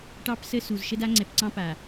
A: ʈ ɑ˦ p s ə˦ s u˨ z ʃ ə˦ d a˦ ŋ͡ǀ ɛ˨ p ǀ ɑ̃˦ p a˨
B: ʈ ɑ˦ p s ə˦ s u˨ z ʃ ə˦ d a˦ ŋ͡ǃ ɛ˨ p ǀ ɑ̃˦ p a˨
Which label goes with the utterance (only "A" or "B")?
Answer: A